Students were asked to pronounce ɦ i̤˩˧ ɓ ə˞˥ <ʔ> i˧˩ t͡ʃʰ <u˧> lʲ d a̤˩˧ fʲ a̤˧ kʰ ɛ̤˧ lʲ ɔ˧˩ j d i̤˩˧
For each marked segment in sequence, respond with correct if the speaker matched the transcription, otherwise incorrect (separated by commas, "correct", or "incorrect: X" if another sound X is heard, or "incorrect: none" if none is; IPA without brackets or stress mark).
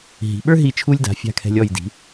incorrect: ɦ, correct